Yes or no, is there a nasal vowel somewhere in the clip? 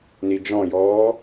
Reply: yes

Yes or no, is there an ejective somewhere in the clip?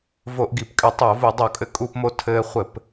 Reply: yes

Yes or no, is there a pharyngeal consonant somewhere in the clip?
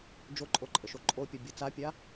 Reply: no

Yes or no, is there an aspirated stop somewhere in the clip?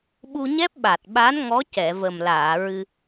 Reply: no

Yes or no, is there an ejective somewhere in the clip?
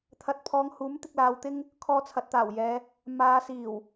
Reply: no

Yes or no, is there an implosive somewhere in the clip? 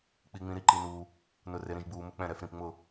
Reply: no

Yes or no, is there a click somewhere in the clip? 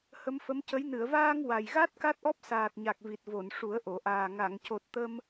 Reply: no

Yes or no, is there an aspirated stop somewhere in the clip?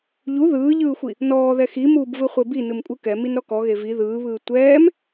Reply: no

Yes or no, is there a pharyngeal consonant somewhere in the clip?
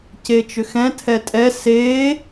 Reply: no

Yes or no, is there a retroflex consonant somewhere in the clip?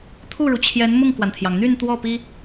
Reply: yes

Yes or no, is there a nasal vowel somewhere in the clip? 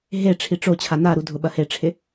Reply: no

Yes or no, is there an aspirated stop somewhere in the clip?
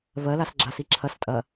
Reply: yes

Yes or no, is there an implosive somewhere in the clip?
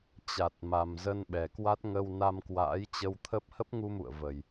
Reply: yes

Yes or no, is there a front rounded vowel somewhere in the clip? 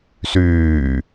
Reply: yes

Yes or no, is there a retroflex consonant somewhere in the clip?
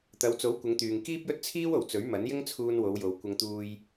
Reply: no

